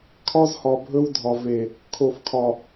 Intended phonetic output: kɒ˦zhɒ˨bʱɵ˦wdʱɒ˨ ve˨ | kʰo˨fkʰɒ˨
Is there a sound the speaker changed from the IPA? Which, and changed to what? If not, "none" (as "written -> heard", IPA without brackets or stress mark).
k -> kʰ